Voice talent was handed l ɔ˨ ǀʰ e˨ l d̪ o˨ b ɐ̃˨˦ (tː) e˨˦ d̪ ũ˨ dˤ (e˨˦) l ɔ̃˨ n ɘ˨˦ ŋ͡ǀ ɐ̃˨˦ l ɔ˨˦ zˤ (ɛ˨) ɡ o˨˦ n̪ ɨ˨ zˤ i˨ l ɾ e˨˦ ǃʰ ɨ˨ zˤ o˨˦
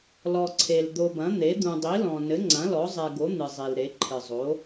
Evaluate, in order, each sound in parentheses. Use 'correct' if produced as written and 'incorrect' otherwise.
incorrect: n̪, incorrect: i˨˦, correct

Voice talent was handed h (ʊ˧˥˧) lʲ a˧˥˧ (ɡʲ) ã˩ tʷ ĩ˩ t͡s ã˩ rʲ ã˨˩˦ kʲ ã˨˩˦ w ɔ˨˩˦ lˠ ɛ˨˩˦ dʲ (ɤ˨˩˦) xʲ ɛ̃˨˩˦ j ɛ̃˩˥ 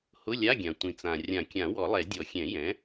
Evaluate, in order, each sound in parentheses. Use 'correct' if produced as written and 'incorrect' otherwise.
correct, correct, incorrect: ɔ˨˩˦

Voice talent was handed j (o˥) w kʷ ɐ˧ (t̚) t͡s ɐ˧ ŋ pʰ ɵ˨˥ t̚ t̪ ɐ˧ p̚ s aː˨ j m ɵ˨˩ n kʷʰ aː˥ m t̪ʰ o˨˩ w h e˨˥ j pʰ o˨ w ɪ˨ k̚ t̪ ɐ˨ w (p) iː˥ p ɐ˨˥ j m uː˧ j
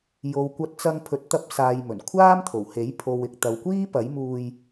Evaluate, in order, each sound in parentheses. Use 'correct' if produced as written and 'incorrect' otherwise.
incorrect: o˨, correct, incorrect: kʷ

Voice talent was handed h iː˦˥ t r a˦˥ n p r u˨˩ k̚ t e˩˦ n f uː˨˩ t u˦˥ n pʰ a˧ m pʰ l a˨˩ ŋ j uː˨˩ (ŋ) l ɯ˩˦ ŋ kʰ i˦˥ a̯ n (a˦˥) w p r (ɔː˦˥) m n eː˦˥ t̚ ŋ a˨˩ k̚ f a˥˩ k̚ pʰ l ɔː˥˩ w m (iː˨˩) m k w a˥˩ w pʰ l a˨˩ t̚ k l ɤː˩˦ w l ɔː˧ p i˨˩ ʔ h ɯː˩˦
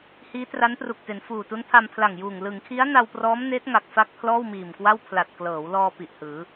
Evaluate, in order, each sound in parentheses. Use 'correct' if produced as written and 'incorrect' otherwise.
correct, incorrect: a˧, correct, correct

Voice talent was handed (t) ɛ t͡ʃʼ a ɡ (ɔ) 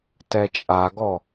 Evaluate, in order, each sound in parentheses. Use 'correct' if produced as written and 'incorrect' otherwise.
correct, correct

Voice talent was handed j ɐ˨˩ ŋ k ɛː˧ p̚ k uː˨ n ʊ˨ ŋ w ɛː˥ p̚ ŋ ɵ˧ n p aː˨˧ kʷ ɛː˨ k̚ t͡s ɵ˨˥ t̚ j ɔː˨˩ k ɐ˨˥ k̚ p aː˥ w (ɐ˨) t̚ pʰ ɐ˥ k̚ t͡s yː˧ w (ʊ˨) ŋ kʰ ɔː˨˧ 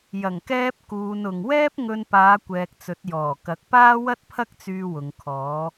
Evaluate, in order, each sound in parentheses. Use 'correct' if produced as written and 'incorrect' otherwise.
incorrect: ɐ˥, correct

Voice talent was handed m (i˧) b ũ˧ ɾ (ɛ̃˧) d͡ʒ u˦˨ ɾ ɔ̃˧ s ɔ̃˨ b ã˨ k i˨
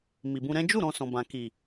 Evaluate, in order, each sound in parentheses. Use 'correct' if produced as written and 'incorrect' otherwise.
incorrect: i˨, incorrect: ɛ̃˦

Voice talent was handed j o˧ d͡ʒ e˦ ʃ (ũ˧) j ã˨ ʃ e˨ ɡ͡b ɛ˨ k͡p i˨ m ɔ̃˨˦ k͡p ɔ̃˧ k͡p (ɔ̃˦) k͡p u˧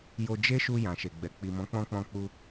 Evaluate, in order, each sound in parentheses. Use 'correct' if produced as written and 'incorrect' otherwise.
incorrect: u˧, incorrect: ɔ̃˧

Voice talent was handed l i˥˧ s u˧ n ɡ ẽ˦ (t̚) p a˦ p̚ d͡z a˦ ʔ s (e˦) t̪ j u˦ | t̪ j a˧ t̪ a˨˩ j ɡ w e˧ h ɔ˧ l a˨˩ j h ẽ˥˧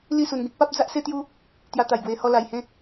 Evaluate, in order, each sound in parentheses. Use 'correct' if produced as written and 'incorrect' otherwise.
incorrect: k̚, correct

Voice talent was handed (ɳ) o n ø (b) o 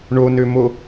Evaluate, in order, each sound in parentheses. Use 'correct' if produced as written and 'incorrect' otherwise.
correct, incorrect: m

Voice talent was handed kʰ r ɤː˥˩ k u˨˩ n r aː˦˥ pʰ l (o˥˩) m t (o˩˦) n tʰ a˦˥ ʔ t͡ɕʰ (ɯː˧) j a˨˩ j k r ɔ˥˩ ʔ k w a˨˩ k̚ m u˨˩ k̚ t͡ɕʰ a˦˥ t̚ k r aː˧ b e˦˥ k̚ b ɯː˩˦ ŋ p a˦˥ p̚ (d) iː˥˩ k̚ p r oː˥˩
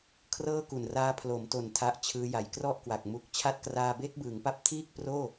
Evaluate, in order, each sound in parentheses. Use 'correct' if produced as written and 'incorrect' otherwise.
incorrect: o˩˦, correct, incorrect: ɯː˦˥, incorrect: tʰ

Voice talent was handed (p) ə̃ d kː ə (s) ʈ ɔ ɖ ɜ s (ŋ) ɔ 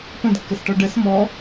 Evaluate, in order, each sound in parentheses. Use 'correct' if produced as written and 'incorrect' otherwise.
correct, correct, incorrect: m

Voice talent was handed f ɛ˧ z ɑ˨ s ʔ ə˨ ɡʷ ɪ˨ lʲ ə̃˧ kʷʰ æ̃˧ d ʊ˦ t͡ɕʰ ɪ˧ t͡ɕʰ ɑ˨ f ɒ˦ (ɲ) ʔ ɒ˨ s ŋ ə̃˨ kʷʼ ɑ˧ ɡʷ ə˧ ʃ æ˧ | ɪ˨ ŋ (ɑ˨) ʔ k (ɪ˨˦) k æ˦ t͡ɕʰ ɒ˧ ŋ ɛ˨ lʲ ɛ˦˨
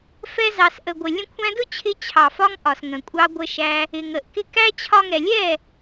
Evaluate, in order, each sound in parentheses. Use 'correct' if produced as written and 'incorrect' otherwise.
incorrect: ŋ, incorrect: ə˨, incorrect: ɪ˧

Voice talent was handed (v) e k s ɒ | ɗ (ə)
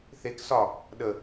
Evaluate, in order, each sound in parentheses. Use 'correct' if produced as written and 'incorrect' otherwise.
incorrect: θ, correct

